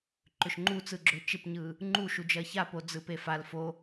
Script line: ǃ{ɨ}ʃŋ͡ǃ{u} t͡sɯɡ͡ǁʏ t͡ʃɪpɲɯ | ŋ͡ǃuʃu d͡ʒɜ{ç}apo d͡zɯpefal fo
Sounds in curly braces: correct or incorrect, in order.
incorrect: ʏ, correct, correct

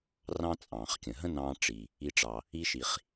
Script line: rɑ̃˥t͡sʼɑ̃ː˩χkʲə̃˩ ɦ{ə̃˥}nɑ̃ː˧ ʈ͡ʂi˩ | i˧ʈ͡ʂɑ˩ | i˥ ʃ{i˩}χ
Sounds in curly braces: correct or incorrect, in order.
correct, correct

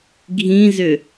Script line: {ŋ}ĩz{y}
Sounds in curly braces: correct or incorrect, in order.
incorrect: ɡʱ, incorrect: ʏ

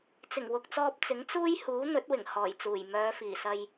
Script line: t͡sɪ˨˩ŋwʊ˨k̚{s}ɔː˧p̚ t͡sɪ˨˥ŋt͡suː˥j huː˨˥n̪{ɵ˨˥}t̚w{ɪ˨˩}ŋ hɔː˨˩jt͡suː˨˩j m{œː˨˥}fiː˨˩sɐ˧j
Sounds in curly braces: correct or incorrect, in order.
incorrect: t͡s, correct, correct, incorrect: œː˨˧

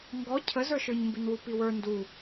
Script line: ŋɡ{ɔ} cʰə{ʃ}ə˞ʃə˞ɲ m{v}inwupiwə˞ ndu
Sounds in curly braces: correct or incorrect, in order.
correct, incorrect: z, incorrect: b

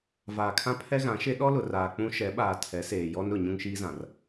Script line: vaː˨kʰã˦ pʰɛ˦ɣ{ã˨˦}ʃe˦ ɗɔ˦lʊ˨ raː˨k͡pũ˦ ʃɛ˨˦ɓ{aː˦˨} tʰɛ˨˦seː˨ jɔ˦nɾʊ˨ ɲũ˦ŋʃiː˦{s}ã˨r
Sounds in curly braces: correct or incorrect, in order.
correct, incorrect: aː˨, incorrect: z

